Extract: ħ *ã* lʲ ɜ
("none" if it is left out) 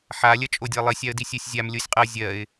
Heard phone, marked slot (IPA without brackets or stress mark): a